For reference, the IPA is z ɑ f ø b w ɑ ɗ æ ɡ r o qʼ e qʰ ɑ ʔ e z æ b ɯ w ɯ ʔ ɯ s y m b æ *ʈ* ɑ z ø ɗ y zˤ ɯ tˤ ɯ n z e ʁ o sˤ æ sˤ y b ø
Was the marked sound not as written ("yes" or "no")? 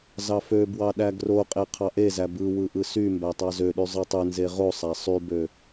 yes